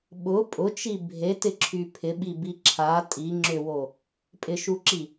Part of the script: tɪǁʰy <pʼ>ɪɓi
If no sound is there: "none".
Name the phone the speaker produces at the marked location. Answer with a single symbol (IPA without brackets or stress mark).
pʰ